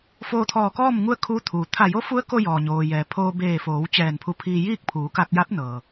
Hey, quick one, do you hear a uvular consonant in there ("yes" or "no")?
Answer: no